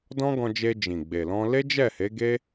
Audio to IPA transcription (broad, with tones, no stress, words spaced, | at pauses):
dɔ̃˦ɡɔ̃˧d͡ʒe˧ d͡ʒĩ˨ɡ͡be˨lɔ̃˧ le˦d͡ʒɛ˦˨he˨˦ ɡe˦